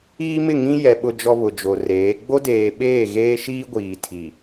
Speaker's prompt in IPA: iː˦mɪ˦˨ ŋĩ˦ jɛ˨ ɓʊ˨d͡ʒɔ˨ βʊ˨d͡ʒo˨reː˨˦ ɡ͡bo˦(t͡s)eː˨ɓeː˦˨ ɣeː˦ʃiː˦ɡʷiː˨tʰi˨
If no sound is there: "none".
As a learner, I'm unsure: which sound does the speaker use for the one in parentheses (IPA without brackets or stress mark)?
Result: d